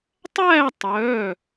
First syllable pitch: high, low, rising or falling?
falling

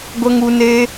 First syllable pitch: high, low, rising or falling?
high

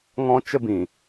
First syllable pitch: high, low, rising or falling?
high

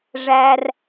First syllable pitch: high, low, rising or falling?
high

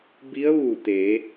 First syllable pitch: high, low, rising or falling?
rising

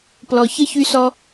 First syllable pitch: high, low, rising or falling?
low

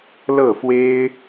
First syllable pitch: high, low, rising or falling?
falling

